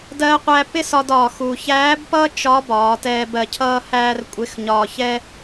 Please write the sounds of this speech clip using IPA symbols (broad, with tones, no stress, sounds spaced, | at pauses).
d ɜː˧ qʷ æ˧ p ɪ˥ s ɒ˧ d ɒː˩ x u˩ ç æː˧˥ b p ʌː˥ t͡ʃ ɒ˧˥ b ɒː˩˧ t ɛː˧ b ɜ˧ cʰ ʌː˥ h æː˥ r kʷʼ ɪ˧˥ x ɲ ɒː˧ ç ɛ˥